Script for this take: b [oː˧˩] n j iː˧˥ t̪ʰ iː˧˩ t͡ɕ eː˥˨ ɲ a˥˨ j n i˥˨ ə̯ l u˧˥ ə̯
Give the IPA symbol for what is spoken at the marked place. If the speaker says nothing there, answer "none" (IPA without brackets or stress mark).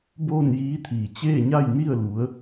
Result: oː˥˨